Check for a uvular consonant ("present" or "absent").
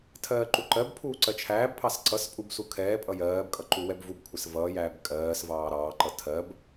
absent